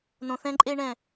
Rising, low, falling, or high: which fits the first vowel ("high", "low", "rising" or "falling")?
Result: low